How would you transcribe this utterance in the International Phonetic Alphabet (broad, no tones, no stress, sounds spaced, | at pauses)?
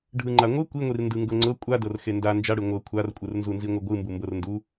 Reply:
ɖʱ ɯ ŋ͡ǃ a ŋʷ ɯ kʷ i ŋʷ i r n d ɯ ŋ ɡ ɤ ŋ͡ǀ ɤ kʷʼ a d ɤ r x e n d a n d͡ʒ a ɽ ɯ ŋʷ ɤ kʷʰ a r kʷʼ ɯ r n z u n z i ŋʷ ɯ ɡʷ ɯ m b u m b ɤ r n d u